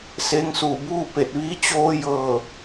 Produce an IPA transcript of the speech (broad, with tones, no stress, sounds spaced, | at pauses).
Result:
s eː˧ ŋ s uː˧˩ b uː˥˨ p e˧˩ t̚ ʋ iː˧˥ t͡ɕ oː˧ j ɤː˧˩